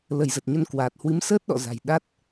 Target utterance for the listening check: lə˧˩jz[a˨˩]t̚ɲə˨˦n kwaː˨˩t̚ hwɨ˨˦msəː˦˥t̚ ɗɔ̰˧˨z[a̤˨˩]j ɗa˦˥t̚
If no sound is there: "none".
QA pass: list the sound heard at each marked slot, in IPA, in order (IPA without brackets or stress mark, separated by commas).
ə˨˩, a̤˨˩